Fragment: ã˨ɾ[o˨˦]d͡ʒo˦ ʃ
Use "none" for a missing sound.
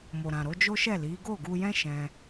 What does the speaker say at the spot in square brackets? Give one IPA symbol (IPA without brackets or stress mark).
o˨˦